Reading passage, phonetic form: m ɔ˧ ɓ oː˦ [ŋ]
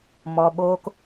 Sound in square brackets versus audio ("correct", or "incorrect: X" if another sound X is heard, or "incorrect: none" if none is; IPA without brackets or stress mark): incorrect: k